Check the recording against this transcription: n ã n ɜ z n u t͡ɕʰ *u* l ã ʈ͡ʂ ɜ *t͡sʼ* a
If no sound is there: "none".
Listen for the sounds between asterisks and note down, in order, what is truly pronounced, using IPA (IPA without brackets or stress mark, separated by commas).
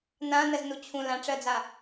ũ, d͡z